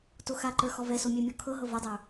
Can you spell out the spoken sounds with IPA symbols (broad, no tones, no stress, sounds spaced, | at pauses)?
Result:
t o x a ǃ ə˞ x ɔ v ɛ s o mʲ ɛ mʲ ɔ kʰ ɤ ɦ ɤ v ɔ dˤ ə˞